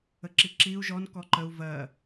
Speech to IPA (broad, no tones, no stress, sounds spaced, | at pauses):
ə ǁ i ǁ i u̯ ʒ ɔ n k ɔ ǃ ə u̯ v ɜ